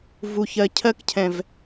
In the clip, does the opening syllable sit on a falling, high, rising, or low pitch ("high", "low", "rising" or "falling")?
low